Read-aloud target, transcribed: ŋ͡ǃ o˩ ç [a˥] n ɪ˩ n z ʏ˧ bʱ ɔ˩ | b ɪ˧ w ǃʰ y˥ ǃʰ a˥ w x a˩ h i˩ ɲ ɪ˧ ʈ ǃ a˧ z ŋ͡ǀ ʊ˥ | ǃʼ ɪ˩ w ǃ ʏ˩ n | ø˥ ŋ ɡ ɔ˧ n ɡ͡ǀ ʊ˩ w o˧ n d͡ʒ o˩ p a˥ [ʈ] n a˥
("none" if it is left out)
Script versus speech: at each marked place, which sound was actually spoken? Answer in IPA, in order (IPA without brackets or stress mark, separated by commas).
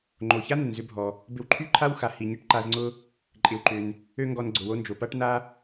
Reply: a˥, ʈ